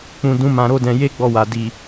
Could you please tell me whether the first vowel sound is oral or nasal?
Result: nasal